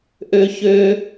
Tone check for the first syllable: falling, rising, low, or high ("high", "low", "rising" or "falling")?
high